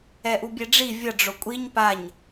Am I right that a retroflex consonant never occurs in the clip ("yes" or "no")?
no